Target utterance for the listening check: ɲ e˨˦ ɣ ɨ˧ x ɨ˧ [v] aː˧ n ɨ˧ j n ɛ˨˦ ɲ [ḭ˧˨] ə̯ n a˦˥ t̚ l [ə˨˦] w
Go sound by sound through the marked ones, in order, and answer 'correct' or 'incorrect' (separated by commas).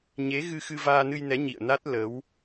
correct, correct, correct